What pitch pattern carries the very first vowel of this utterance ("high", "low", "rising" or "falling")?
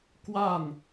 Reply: falling